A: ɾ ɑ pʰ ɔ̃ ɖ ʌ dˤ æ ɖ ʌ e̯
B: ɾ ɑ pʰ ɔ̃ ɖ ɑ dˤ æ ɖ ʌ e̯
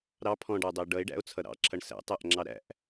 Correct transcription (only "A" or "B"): B